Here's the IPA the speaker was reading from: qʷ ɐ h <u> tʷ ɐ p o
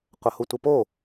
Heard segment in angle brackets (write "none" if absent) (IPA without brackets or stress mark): u